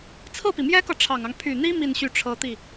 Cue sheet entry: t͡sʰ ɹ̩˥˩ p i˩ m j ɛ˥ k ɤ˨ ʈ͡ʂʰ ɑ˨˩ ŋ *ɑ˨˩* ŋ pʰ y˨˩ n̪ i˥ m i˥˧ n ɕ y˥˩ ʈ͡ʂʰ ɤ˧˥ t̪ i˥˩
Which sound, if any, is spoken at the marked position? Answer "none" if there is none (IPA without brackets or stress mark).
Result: ɑ˦